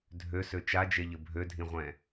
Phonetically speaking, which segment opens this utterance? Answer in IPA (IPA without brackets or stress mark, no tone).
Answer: dʱ